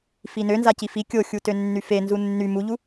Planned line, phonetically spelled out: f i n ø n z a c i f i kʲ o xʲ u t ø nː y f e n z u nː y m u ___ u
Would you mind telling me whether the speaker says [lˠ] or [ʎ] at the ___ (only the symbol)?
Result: ʎ